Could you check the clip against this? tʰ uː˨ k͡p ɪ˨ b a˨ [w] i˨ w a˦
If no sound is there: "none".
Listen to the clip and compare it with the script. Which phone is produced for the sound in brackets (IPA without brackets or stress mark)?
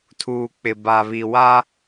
β